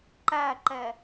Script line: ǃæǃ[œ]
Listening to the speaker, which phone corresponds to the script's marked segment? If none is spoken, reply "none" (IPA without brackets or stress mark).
ɛ